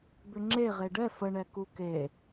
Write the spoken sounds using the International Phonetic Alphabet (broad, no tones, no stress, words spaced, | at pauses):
bʏŋ͡ǁe ʁeɖɛ fəɳɛ kuke